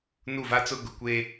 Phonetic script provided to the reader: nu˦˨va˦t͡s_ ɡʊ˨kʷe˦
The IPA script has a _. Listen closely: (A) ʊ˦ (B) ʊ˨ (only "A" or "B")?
A